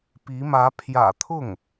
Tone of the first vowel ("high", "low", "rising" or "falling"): rising